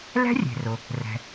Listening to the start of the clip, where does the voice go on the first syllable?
high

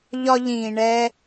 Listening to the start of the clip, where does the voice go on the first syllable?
high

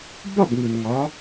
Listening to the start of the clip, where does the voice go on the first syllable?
falling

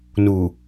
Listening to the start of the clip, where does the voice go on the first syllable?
low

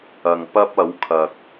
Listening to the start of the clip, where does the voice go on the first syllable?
low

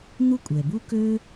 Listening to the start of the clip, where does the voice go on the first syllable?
high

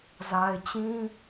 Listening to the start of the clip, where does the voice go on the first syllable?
low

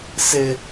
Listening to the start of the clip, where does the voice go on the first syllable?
high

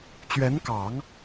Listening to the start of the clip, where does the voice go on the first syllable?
rising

